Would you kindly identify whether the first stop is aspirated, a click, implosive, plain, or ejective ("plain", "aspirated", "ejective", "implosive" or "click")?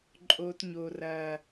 click